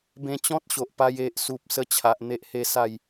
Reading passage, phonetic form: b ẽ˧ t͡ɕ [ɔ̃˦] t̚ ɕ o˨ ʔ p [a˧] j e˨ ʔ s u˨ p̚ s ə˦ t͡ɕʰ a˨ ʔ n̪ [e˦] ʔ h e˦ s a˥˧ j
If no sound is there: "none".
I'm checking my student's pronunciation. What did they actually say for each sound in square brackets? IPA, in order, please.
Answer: ɔ̃˦, a˧, e˦

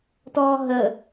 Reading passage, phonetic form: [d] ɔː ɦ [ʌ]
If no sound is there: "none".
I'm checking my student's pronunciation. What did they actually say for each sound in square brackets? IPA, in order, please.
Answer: t, ə

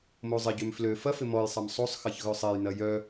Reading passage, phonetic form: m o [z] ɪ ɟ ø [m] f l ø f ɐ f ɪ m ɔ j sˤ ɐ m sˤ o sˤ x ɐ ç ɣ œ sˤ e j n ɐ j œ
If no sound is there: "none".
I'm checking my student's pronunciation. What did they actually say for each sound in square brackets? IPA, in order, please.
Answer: zˤ, m

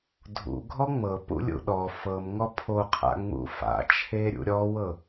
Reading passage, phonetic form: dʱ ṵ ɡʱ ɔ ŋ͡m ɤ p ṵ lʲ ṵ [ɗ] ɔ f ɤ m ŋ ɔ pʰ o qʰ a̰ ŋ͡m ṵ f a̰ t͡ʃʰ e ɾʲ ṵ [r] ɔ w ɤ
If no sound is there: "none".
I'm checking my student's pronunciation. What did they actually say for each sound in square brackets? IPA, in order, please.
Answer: ɗ, ɾʲ

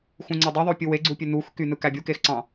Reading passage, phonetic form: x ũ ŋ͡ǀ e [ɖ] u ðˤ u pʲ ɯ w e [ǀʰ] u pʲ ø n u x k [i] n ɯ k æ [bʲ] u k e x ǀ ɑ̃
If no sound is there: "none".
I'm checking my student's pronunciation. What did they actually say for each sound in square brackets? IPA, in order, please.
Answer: dˤ, ɡ͡ǀ, y, bʲ

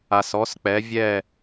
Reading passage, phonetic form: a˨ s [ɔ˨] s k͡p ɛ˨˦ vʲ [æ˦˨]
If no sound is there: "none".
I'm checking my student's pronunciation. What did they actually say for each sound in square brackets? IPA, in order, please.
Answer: ɔ˨˦, ɛ˦˨

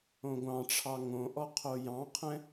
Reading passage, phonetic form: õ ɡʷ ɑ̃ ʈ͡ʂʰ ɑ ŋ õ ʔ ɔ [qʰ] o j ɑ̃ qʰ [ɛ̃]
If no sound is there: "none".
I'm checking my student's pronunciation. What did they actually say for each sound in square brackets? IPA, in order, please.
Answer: qʰ, ɛ̃

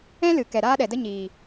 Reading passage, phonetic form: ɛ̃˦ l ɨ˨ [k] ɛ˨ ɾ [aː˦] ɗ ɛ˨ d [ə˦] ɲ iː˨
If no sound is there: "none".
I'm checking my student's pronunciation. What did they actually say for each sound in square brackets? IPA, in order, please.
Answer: k, aː˦, ə˦

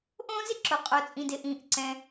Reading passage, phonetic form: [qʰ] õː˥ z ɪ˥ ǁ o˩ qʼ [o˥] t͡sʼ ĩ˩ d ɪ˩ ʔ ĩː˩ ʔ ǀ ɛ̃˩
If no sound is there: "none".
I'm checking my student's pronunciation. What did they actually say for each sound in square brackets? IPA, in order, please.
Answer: ʔ, o˩

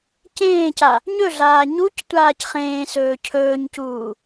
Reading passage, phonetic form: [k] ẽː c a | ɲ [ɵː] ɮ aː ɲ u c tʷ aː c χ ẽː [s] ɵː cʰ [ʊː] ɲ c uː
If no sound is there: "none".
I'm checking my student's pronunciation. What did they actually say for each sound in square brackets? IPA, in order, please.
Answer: c, ɵ, s, ɵː

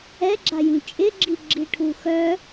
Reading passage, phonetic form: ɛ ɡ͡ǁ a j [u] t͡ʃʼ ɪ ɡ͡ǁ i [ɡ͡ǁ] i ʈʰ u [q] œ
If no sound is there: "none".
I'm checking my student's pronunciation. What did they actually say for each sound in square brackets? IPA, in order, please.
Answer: ũ, ɡ͡ǁ, x

